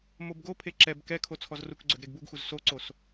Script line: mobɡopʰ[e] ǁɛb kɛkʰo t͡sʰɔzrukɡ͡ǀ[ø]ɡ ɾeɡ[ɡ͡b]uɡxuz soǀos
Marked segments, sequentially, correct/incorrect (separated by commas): correct, correct, incorrect